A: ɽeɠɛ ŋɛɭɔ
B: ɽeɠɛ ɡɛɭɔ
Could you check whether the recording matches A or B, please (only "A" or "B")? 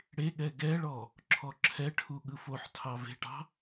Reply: B